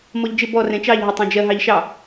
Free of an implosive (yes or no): yes